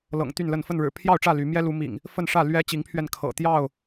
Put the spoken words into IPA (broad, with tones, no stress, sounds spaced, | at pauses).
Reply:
l ɤ̰˨˩ ŋ t̪ y˥˨ n l ə˥˨ n f ə˥˨ n ɻ ɻ̩˨˩ pʰ j ɑ˥˨ ʊ̯ ʈ͡ʂ ä˥˨ l y˨˦ m j ɛ˦ l u˨˦ m ḭ˨˩ ŋ | f ə˥˨ n ʂ ä˥˨ l ɥ ɛ˦ t͡ɕ i˨˦ ŋ pʰ ɥ ɛ˧ n kʰ ɤ̰˨˩ t̪ j ɑ˥˨ ʊ̯